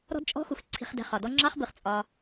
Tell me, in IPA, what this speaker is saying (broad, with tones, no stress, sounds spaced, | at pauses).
ɾ ɔ̤˦ d t͡ʃʼ ɔ̤˦ x u˨ x ǀʰ i̤˧ χ d ɛ̤˧ χ ɒ˨ d ɔ˦ ŋ͡ǁ ɑ˦ χ b ɯ˨ χ t͡sʼ ɒ˧